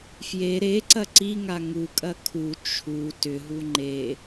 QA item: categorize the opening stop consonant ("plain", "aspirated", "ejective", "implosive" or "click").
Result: click